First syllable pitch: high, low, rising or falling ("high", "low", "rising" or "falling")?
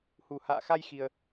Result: low